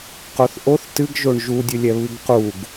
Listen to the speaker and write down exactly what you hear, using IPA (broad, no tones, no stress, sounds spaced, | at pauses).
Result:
q o θ ʔ o θ t ɨ ɡ ʒ o ɳ ʒ u dʲ ɨ lʲ ɛ β ɨ ɡ q u ɡ